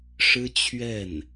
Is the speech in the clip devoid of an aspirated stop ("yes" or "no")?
no